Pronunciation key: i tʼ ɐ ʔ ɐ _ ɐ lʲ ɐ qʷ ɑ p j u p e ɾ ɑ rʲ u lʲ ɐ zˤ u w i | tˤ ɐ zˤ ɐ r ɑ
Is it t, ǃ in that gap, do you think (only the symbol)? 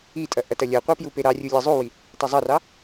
t